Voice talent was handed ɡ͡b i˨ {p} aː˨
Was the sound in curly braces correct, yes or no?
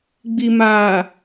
no